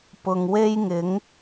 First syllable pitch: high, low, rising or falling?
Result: low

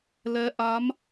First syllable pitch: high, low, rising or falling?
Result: rising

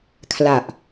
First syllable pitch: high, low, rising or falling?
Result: low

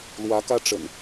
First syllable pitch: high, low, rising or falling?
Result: rising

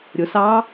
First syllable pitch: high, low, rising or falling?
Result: rising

